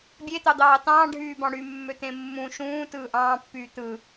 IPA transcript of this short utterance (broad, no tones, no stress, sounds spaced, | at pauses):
bʲ e t̪ ɑ d̪ ɑː t ɑ̃ː ɖʱ yː b ɑ̃ ɽ y mː ø t̪ ẽ mː ũ ʃ ũː t ɯː ʔ ɑ̃ː pː yː t̪ ɯ